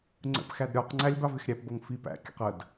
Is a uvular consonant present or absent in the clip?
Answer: present